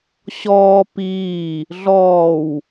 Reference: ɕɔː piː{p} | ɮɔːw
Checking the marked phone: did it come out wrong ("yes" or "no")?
yes